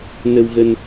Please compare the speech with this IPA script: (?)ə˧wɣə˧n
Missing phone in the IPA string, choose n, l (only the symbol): n